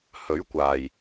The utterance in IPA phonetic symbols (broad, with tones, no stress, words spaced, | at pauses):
hɵ˨˥ɥkʷaː˨˩j